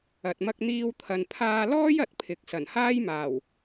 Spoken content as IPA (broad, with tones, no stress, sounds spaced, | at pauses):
ɐ˨ t̚ m ɐ˧ k̚ n̪ iː˧ w t̪ʰ ɐ˨ n pʰ aː˧ l ɔː˥ j ɐ˨˥ t̚ pʰ ɪ˨ k̚ s ɐ˨˩ n h aː˥ j m aː˨˩ w